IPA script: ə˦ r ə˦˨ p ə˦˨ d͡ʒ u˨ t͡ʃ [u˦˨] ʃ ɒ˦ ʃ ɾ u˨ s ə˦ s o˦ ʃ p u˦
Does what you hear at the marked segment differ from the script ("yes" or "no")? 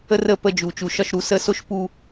yes